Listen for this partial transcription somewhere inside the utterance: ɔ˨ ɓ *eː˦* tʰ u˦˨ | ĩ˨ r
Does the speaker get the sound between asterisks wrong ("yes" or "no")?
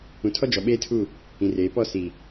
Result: no